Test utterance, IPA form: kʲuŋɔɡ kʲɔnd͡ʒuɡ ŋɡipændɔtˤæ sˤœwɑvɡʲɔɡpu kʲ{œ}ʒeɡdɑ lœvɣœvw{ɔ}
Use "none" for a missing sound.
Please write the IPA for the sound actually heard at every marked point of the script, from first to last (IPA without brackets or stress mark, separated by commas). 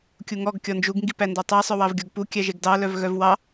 æ, ɑ